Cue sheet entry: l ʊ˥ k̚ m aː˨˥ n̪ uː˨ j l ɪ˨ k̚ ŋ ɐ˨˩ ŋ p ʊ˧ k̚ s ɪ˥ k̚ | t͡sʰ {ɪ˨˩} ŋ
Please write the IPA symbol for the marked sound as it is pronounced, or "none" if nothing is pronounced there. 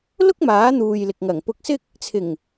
ɪ˨˩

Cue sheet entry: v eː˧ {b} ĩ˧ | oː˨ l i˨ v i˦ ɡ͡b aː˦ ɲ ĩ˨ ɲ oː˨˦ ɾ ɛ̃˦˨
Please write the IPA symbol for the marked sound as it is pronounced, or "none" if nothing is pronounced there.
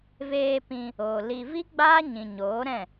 p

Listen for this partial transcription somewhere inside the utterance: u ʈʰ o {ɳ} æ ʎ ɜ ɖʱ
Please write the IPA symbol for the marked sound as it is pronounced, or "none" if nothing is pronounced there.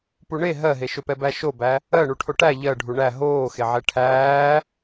ʈ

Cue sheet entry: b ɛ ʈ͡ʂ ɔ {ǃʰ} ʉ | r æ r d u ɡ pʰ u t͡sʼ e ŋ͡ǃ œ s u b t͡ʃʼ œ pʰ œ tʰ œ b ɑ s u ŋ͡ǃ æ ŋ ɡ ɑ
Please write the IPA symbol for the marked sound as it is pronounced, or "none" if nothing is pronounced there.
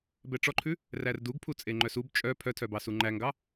ǃʰ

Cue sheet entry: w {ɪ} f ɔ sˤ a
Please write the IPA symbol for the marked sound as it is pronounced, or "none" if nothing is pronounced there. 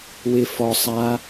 ɪ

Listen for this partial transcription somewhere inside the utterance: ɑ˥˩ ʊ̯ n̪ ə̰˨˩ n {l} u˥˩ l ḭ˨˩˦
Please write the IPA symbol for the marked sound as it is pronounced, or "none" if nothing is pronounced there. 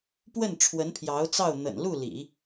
l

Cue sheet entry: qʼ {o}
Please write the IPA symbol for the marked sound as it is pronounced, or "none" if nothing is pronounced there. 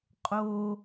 o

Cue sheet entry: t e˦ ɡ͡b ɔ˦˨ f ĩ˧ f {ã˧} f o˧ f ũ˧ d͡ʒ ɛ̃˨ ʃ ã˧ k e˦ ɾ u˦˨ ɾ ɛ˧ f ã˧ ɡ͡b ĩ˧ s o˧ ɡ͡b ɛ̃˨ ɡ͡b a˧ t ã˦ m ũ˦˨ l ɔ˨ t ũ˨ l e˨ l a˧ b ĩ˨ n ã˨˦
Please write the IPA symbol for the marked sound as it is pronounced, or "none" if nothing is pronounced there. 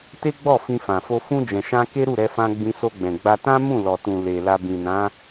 ã˨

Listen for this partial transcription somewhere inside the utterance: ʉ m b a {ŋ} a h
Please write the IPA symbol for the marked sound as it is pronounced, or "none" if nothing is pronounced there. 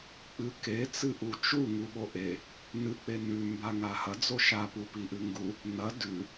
ŋ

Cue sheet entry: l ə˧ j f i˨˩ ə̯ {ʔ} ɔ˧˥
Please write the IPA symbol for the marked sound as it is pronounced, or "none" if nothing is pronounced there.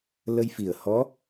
h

